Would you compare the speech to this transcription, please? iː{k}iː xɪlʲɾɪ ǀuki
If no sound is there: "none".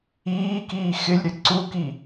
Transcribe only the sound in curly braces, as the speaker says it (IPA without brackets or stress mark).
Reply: k